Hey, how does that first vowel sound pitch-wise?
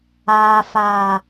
low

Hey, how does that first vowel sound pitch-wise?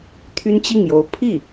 high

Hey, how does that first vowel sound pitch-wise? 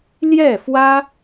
falling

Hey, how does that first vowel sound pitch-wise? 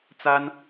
high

